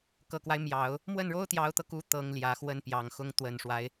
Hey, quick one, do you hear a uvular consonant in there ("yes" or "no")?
no